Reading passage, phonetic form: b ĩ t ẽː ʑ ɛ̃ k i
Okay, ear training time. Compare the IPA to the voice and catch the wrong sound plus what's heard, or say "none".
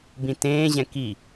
none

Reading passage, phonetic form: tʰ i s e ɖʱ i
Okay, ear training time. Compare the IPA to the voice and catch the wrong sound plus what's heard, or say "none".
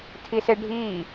none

